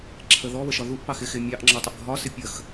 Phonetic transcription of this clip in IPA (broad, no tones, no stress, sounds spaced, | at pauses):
ǁʰ ə ð ɔ β ə ʃ ɒ ð u ʔ p ɑ x ɪ x ɪ mʲ ɑ ʔ ŋ͡ǁ ɔ tˤ ə ʔ ɡʱ ɒ s ɪ pʲ ə x